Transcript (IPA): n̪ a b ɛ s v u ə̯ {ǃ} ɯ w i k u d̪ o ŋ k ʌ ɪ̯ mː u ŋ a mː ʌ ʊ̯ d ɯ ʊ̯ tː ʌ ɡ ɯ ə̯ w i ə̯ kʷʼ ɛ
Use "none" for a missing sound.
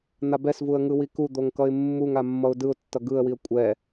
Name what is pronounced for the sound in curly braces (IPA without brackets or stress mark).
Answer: ŋ